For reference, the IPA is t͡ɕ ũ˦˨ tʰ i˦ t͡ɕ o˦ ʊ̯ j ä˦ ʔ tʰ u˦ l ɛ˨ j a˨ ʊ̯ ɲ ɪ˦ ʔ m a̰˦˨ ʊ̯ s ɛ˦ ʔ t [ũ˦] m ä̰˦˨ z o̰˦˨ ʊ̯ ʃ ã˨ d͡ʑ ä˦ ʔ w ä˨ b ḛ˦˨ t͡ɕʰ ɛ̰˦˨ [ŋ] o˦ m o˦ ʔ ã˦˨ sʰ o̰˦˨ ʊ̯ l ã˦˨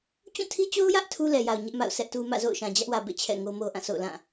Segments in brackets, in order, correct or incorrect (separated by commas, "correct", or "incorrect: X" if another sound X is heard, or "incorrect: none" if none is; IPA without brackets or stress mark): incorrect: u˦, correct